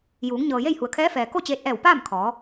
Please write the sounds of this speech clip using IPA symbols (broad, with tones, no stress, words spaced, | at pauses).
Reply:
juː˩˧ŋɲɤː˩ je˥˨jhu˩ə̯kʰɛː˧˥fɛː˩ ko˥˨t͡ɕeː˧t̚ʔɛː˧˩wpaː˥˨m kʰɔː˩˧